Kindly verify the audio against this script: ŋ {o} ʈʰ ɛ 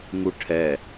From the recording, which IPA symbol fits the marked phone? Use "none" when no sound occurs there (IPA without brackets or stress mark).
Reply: u